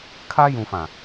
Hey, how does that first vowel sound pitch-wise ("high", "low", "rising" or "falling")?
high